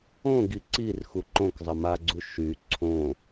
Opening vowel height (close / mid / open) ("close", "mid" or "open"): mid